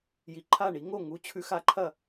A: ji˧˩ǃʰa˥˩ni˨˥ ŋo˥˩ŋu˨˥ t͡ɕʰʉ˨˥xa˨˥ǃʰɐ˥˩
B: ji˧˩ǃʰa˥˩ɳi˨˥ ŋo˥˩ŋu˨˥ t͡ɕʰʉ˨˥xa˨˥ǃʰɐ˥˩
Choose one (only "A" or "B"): B